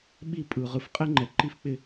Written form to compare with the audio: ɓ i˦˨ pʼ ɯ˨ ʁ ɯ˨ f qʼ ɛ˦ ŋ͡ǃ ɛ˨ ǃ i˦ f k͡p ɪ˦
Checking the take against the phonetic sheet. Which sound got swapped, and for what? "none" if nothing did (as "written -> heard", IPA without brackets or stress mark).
none